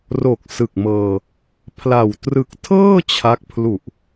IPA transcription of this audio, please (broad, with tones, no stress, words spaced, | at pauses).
ro˨˩k̚sɯ˨˩k̚mɤː˧ | pʰla˨˩w trɯ˨˩k̚tʰɤː˥˩ t͡ɕʰa˦˥k̚ pʰlu˨˩ʔ